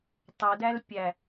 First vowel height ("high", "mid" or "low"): mid